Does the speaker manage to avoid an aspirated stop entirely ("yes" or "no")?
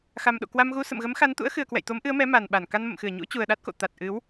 yes